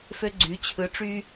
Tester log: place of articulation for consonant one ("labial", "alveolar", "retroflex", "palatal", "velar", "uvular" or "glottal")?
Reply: labial